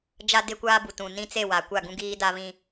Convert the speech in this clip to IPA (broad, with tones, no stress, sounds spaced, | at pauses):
d͡ʒ a˦ d ɪ˦ kʷ aː˦ b u˨ t ũ˨ n ĩ˦ t͡s e˦˨ w a˨ kʷ a˦˨ ɡ ũ˦ ɡ iː˦ d a˦ β ĩ˦